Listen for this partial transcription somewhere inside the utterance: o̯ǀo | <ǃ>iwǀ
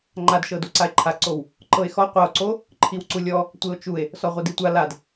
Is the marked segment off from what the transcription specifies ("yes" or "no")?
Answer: yes